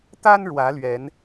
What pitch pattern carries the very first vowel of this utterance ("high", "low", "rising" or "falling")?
high